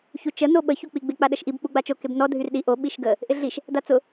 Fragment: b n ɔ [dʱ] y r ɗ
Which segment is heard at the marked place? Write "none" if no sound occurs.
dʱ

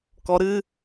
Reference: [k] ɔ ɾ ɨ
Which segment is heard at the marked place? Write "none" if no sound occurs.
k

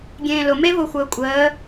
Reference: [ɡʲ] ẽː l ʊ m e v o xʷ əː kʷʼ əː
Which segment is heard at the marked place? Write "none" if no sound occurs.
ɡʲ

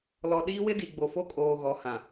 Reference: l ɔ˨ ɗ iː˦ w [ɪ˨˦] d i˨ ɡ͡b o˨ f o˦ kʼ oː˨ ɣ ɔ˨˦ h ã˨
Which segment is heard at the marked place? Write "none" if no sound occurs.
ɪ˦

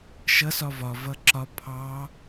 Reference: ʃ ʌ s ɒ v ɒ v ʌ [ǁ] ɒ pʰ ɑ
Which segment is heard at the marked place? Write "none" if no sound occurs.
ǁ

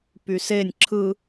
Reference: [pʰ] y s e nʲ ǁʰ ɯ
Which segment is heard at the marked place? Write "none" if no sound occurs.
p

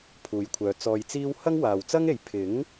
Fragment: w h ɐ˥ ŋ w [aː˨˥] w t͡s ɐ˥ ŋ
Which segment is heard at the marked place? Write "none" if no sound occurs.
aː˨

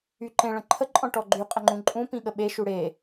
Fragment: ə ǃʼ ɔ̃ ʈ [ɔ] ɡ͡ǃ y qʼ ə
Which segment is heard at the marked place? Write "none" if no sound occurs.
ɔ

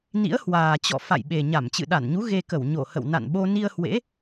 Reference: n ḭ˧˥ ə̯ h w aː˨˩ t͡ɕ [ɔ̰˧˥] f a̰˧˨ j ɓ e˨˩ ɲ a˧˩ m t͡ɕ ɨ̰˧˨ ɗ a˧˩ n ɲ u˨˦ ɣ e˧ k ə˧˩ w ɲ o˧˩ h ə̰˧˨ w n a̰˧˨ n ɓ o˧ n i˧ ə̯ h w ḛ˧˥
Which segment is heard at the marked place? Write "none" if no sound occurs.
ɔ̰˧˨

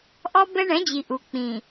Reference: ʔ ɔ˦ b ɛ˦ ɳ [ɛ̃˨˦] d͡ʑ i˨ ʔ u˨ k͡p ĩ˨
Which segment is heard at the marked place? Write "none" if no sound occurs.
ɛ̃˨˦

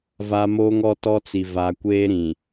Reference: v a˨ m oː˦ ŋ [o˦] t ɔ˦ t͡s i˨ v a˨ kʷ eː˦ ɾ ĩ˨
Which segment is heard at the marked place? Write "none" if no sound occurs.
ɔ˦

